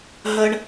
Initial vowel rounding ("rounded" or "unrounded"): unrounded